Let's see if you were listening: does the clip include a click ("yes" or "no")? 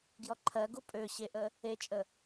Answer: yes